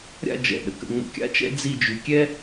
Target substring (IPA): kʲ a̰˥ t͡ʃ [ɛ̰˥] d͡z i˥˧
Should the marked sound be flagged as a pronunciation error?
no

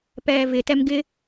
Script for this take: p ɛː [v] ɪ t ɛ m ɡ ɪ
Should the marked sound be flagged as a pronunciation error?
no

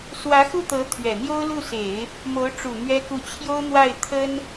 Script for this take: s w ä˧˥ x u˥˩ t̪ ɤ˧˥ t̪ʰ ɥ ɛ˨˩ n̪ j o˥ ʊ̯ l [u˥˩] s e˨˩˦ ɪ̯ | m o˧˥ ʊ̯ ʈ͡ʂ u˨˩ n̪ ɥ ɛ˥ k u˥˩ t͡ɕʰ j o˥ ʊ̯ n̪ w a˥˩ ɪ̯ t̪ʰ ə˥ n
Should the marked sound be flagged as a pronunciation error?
no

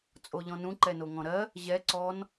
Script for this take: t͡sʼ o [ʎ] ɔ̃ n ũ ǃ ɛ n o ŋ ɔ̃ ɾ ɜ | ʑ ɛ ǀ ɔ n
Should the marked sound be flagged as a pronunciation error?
no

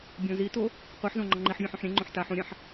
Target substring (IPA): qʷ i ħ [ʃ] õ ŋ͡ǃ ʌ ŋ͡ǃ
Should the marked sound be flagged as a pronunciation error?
yes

